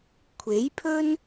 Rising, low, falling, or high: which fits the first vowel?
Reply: rising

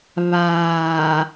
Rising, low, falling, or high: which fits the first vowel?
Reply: low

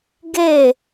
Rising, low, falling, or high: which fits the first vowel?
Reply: falling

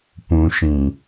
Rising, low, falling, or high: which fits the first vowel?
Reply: low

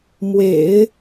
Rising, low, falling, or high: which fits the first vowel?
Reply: low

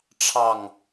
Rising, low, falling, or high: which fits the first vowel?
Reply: falling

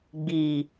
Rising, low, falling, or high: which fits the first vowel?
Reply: low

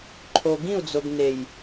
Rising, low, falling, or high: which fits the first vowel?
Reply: low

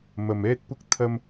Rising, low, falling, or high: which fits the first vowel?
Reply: low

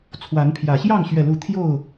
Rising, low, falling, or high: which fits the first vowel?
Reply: rising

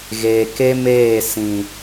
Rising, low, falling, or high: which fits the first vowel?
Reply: low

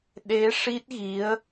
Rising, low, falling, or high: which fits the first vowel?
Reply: rising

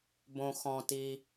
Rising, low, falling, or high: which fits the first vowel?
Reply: low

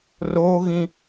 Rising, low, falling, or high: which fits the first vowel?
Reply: high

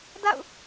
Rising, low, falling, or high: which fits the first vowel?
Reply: falling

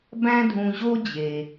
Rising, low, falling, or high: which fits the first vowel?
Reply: high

